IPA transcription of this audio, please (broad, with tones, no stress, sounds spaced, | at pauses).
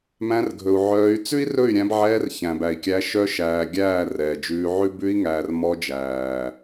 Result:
m æ̃˧ r ɡʱ ɵ˨ u̯ ʕ œː˧ y̯ t͡s ʉ˦ i̯ r ɵ˦˨ y̯ ɾʲ æ̃˧ b ʕ ɛː˧ r ç æ̃˨ b æ˨ i̯ kʲ æ˧ ʃ œ˧ ʃ æː˨ ɡʲ æː˦˨ r ɛː˨ d͡ʒ ʉː˧ ʕ ʉ˦ b ʉ˧ i̯ ŋ æː˨ r m ɔ˧ d͡ʒ æː˨